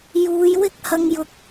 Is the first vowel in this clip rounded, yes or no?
yes